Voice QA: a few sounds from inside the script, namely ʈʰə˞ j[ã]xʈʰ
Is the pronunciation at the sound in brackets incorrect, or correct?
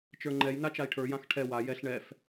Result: correct